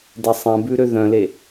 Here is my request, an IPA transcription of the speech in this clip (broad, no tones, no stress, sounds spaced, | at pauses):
d ɛ sˤ ɛ̃ b ʉ ɾ ø ð œ̃ l e